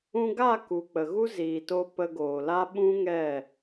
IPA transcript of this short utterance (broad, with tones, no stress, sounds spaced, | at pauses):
ũ˧ ɡ a˦˨ k u˨ k͡p ə˨ ɣ u˦ z iː˨ t o˧ p ə˧ ɡ oː˨ l a˦ ɓ ũ˦ ŋ ɛ˦˨